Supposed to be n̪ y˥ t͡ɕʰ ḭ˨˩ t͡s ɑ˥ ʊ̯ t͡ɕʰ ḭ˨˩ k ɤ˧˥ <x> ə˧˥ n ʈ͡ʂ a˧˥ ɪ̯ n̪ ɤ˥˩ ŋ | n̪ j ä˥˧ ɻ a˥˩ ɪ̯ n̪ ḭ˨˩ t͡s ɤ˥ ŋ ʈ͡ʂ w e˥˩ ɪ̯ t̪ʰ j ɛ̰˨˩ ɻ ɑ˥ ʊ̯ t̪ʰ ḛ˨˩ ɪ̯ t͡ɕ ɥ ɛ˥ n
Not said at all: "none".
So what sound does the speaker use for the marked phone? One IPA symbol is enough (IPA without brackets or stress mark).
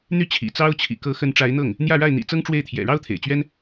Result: x